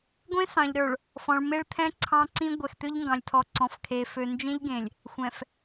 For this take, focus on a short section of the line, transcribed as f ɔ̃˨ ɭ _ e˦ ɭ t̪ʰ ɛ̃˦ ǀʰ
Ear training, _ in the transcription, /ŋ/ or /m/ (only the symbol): m